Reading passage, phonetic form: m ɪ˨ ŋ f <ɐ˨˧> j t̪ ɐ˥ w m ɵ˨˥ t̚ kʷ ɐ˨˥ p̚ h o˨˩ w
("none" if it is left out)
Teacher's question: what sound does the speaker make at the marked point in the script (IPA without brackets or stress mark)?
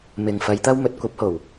ɐ˨˧